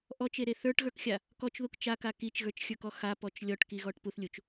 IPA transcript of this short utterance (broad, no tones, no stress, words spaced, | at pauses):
ʔɔt͡ʃeɾe θə˞ʈɣə˞kxʲa | kɔt͡ʃðuk t͡ʃaka kit͡ʃɣə˞t͡ʃxʲə˞kɔ xapɔt͡ʃ lʲɔʈkiɣɔʈ puθlʲut͡ʃ